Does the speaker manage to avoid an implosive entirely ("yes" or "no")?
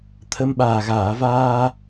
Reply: no